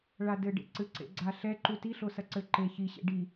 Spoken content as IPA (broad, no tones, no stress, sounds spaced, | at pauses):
ɭ a d ɘ ɖ ḛ ǀ ɨ ǀ ḛ ɡ͡ǀ a ɬ ɛ ǃ u t i ɬ o s ɐ ǀ ɘ ǃ e ç i ɕ ḛ ɖ i